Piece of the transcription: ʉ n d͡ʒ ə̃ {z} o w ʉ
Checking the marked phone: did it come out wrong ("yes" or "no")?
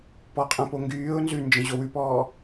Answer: yes